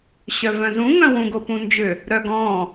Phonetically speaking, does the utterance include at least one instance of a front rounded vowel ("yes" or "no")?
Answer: yes